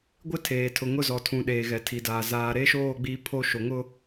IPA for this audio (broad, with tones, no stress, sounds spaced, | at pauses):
ɡʷ ɪ˦ tʰ eː˨ tʰ ʊ˨ ŋ ʊ˦˨ z ɔ˨ tʰ ũ˨ ɗ eː˨ ɣ ɛ˨ tʰ i˨ d aː˨ z aː˨ ɾ e˦ ʃ oː˦˨ ɡ͡b iː˦ pʰ o˦ ʃ o˨ ŋ ʊ˦